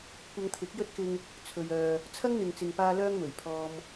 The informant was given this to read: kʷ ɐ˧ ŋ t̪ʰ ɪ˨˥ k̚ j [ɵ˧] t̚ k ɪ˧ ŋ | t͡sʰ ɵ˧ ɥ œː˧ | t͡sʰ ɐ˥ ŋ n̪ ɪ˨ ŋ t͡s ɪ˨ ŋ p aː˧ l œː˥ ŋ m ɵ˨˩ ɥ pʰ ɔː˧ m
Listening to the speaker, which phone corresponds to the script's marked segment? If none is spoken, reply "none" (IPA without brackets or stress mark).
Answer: ɵ˥